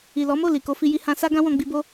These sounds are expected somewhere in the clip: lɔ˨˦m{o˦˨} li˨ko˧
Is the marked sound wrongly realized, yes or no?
no